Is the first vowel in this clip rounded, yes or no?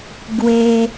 no